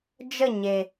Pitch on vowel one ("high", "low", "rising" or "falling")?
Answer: falling